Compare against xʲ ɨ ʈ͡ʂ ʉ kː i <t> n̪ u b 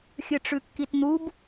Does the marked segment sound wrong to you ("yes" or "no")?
no